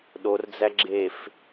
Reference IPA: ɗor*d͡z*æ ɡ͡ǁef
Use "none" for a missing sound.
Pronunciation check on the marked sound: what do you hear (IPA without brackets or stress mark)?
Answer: d͡z